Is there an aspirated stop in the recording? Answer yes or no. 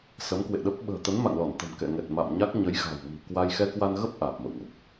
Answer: no